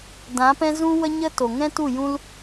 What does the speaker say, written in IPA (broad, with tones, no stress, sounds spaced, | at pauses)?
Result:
d ã˨˦ p ɛ̃˦ z ũ˦ w ə˦ ɲ ə˦ t o˨ ŋ ɛ̃˦ t u˦˨ j ũ˦ l